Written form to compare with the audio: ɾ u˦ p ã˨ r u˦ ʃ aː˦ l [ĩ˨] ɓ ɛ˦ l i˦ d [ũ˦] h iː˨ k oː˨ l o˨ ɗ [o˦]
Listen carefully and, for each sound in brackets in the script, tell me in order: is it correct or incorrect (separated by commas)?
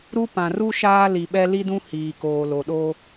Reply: incorrect, correct, correct